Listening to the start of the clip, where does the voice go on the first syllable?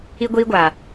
high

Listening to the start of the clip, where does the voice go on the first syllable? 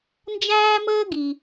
high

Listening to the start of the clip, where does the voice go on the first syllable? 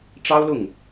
high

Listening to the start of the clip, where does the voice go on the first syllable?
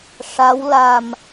rising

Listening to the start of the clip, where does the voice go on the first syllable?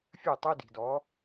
falling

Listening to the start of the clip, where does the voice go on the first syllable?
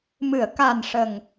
low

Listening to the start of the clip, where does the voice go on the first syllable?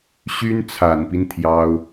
high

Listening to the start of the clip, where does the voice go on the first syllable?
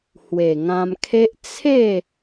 low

